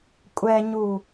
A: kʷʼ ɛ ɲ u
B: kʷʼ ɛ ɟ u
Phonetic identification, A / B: A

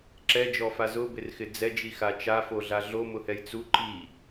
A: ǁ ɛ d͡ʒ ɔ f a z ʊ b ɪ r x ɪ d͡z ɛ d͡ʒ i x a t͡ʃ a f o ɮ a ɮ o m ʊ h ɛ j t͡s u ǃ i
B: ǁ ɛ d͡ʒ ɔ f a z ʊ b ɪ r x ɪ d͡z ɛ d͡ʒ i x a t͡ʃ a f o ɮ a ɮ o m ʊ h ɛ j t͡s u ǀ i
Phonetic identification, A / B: A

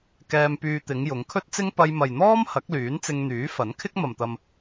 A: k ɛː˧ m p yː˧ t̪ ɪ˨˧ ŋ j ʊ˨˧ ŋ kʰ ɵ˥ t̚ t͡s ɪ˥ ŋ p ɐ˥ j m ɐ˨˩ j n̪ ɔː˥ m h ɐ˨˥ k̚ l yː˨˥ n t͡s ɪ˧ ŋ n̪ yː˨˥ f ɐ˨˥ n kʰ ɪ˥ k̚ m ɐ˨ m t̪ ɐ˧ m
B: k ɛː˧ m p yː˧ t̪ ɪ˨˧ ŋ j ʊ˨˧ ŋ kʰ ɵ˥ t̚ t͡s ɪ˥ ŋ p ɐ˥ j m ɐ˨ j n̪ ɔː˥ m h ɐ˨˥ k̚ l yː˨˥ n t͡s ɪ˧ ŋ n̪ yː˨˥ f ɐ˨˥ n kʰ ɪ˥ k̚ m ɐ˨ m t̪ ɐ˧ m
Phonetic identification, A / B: B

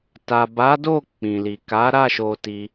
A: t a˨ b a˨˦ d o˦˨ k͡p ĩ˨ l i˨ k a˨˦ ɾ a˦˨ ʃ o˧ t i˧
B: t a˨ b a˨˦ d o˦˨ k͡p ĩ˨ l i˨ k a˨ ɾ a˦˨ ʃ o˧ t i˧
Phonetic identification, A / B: A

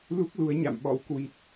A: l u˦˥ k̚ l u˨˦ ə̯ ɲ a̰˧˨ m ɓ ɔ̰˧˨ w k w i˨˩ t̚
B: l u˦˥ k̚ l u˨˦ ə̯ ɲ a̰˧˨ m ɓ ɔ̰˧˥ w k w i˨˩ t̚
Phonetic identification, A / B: B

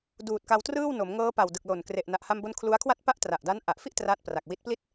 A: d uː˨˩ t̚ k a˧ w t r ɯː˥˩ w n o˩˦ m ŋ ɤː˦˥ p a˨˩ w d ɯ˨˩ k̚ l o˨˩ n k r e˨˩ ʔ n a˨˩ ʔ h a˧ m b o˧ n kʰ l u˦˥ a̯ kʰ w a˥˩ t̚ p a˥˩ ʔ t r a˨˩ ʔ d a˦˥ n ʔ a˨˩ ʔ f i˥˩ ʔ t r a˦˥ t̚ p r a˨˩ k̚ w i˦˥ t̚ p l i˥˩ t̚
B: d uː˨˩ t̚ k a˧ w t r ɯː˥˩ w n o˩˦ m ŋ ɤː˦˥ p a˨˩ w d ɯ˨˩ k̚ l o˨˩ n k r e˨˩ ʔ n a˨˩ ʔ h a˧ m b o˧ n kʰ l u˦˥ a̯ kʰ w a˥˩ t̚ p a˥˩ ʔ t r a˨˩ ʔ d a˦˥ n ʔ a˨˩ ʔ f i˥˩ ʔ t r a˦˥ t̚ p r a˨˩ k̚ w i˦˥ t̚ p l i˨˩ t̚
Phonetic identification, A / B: A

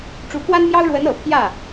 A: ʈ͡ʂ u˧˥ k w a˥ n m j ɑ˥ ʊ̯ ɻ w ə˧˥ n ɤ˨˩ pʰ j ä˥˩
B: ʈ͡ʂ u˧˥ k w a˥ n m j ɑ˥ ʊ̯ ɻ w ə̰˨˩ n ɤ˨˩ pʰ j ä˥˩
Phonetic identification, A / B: A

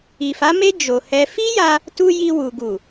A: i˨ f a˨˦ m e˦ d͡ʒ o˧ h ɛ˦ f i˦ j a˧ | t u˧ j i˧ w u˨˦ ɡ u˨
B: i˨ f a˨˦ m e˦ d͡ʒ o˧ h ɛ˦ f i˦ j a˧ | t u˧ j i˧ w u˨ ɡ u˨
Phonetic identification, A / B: B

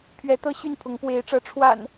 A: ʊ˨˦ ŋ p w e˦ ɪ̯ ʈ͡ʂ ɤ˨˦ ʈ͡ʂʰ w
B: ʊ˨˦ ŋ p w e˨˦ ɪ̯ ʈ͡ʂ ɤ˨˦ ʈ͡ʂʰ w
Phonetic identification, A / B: B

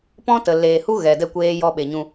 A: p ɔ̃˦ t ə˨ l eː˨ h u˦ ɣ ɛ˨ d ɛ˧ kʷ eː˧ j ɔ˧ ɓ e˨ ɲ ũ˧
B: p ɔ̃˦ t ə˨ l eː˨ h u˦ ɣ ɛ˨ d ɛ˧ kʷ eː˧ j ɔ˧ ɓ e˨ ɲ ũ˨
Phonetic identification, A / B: A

